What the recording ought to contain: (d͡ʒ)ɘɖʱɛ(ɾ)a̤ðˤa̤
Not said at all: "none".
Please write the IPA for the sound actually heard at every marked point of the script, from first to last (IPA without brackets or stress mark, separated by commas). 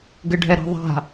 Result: ɡ, ɾ